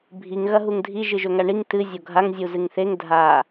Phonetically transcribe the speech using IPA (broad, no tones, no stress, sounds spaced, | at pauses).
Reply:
bʱ i ŋ ɣ ɐ ɦ u ŋ dʱ i ʒ ɨ ʒ ɵ ŋ a ɳ i ŋ t ɨ zʲ o ɡʱ a ŋ zʲ u z ɨ ŋ θ e ŋ dʱ a